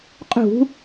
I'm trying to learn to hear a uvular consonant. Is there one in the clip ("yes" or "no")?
yes